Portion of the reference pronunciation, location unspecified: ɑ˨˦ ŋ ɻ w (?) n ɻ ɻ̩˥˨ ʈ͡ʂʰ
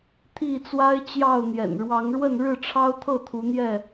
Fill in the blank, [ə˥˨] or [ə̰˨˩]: ə˥˨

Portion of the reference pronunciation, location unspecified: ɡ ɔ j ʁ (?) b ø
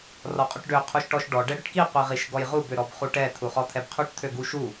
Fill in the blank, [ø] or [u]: u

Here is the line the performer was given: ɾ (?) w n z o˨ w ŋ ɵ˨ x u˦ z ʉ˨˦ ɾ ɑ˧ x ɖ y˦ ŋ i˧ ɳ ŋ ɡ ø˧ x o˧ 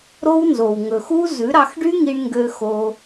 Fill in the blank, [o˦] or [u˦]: o˦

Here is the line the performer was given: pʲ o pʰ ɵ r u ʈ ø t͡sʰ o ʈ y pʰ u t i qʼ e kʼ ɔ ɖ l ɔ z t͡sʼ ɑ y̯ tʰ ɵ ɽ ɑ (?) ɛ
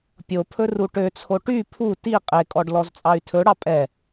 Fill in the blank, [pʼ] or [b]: pʼ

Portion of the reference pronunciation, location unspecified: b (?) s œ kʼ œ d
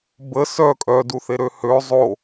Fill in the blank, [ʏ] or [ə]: ə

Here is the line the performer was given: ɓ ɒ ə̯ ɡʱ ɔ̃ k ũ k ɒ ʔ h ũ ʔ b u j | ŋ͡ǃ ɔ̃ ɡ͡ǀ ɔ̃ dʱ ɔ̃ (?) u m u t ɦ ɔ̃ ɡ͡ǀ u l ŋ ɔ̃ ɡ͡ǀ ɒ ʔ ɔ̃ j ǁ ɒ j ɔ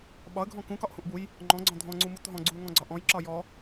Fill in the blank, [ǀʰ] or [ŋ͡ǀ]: ŋ͡ǀ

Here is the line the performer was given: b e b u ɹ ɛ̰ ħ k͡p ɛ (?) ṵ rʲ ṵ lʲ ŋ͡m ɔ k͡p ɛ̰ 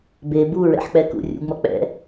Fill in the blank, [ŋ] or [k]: k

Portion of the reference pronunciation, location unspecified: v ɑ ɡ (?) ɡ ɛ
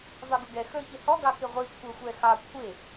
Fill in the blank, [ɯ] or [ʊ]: ʊ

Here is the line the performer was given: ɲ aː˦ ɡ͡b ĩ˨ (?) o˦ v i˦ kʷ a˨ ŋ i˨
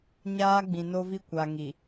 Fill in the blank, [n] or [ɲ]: n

